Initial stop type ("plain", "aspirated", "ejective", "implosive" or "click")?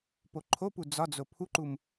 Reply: plain